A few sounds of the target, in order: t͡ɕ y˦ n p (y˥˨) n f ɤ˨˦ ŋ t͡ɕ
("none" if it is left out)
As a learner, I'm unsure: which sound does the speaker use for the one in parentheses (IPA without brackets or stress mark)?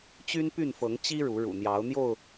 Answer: y˥˨